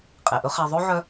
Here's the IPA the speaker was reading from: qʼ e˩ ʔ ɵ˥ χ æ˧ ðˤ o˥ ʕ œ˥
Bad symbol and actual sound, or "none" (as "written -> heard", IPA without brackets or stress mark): none